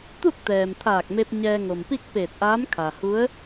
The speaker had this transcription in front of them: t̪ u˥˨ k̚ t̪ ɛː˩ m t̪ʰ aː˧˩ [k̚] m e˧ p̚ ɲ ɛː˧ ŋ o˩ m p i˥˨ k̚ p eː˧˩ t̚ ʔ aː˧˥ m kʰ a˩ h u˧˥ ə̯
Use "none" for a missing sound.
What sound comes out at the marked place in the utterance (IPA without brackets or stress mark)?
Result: k̚